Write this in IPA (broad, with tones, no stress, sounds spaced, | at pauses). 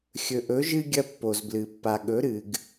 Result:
xʲ ɵ˧ ʔ ɵ˧˥ ʒ ɨ˥ ɡʲ ɐ˥ pː o˧ z b l ɨ˧ pː a˧ ɠ ɵ˧˥ ɾ ɨ˧ ɡ